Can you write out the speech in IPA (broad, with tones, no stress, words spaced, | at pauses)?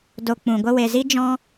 do˨ k͡pũ˨ɡʷə˦ we˨zi˦ d͡ʒɔ̃˦